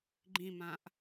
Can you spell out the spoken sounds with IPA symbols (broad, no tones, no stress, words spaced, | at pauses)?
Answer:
ɡ͡ǃĩmãʔ